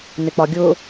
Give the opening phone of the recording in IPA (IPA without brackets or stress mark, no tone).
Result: n̪